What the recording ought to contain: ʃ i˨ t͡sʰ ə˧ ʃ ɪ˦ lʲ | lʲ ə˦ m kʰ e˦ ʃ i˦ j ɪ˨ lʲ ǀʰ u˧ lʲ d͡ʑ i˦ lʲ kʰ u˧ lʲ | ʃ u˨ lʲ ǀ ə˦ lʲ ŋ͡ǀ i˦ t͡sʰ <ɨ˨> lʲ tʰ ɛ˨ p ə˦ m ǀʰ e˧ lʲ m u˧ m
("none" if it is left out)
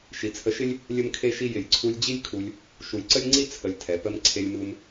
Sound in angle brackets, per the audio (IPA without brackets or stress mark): ə˨